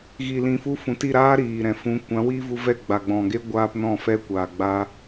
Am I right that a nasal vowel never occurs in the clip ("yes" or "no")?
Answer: no